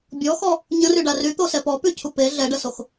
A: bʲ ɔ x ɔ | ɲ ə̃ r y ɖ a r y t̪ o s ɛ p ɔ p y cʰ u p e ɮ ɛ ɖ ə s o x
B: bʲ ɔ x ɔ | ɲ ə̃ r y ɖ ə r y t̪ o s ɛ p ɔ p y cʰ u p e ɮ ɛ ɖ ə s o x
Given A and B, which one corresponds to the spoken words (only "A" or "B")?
A